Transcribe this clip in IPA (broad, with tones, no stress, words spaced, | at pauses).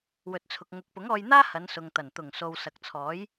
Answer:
wɵ˨t̚t͡sʰʊ˨k̚ ŋʊ˨˥k̚pʊ˨˥ŋɔː˧jn̪aː˥ hɐ˨˧nsʊ˨ŋt̪ɐ˨˩n t̪ʊ˨˩ŋso˨w sɐ˨k̚t͡sʰɔː˨˥j